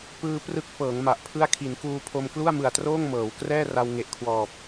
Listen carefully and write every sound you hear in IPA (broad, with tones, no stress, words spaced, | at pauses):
pɯː˧ prɯ˦˥k̚fɤː˩˦ŋ ma˨˩ʔpʰɯ˥˩a̯ kʰi˩˦nkuː˧pʰo˧m klu˥˩a̯mɯ˨˩a̯troː˥˩ŋ mɤː˩˦w krɛː˥˩ra˧w ŋe˨˩ʔkʰwɔː˨˩p̚